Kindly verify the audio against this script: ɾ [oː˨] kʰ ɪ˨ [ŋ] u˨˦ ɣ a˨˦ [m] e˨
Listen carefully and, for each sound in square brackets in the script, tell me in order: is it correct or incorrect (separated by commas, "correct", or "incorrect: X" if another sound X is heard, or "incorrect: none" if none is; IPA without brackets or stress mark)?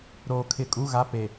correct, incorrect: kʼ, incorrect: p